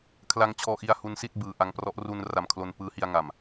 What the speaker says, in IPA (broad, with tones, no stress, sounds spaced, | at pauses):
kʰ l a˧ ŋ t͡ɕʰ ɔː˧ ʔ i˧ a̯ h u˦˥ n s i˥˩ t̚ b ɯː˨˩ ʔ a˧ ŋ p r ɔ˦˥ ʔ r u˧ n r a˧ m kʰ l o˧ n p ɯː˦˥ h i˧ a̯ ŋ a˨˩ m